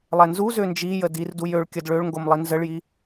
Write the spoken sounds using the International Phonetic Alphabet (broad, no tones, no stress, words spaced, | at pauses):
lˠɛnzuzø nd͡ʒijə dirdu jøɭ kʲəd ɭøɭŋɡom lˠinzəɭji